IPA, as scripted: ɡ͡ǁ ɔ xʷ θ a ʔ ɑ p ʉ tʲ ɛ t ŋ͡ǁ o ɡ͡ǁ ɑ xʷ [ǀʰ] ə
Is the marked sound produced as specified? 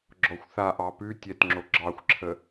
no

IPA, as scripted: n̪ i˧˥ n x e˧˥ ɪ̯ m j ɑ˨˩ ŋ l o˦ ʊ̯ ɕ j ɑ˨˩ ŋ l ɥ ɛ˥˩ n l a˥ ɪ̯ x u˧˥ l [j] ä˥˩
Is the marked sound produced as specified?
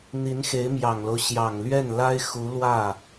no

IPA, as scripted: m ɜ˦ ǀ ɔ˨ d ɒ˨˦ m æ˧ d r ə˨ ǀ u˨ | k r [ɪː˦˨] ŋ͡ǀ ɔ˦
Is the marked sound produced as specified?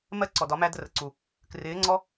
no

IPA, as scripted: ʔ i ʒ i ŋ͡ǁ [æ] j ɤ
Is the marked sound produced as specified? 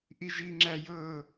yes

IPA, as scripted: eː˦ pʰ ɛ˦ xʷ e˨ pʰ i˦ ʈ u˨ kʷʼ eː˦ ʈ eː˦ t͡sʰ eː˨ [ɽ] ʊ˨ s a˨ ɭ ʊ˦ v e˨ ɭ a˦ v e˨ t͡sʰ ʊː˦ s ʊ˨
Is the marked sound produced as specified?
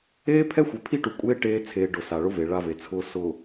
no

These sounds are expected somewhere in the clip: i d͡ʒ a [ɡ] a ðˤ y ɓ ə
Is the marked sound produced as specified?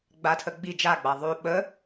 no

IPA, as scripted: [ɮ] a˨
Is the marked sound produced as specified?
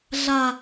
yes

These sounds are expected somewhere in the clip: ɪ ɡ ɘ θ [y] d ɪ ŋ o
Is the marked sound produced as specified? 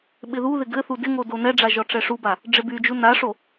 no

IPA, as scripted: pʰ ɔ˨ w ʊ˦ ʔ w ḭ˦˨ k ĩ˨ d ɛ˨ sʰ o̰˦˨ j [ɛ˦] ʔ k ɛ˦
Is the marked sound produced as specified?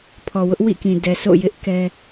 no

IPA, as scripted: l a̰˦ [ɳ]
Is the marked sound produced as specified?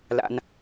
no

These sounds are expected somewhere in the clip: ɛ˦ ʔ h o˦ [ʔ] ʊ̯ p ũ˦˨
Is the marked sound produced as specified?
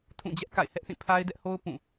no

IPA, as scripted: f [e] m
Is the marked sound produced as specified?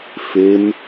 yes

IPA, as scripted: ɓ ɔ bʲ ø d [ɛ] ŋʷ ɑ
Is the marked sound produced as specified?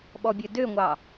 no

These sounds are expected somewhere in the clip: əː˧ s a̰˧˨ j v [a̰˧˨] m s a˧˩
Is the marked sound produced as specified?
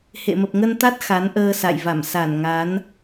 no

